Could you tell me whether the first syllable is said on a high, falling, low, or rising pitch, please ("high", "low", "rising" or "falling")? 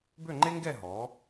falling